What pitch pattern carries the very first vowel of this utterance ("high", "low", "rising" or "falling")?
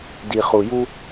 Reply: low